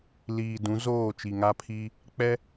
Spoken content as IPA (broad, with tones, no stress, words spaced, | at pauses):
liː˨dũ˨˦ zoː˦˨ t͡ʃi˨ŋa˦pʰi˦ | k͡pɛ˦